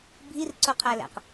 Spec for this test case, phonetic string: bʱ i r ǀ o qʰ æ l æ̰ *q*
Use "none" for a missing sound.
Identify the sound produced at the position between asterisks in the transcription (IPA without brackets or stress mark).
q